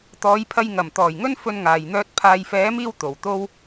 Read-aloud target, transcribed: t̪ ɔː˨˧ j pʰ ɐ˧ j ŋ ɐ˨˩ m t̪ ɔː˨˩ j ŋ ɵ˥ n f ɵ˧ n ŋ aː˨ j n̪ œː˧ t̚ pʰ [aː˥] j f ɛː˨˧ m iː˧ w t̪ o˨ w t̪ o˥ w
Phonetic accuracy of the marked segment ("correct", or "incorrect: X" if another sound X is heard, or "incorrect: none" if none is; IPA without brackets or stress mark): incorrect: aː˨